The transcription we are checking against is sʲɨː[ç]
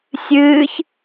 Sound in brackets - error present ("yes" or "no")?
no